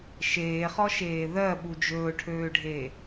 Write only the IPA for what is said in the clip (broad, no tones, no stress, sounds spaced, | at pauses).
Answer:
ʃ eː χ ɔ ʃ eː ð ɜ ɓ u d͡ʒ ɵː ʈʰ øː ɖʱ e